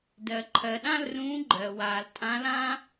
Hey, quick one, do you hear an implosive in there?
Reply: yes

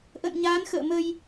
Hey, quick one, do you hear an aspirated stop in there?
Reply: no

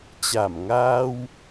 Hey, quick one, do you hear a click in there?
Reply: no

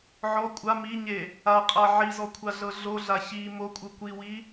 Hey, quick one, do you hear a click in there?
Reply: no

